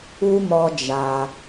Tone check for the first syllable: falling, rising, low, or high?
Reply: high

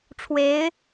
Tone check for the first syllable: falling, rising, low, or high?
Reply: rising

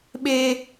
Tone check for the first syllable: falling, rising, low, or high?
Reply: high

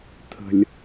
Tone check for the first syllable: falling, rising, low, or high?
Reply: low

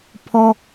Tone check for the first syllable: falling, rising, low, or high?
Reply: high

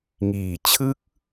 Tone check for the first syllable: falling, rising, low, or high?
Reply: low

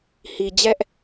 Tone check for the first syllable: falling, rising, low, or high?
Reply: low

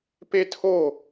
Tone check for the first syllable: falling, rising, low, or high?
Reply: high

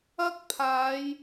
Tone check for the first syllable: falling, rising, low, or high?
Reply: high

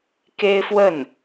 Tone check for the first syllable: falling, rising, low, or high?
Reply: high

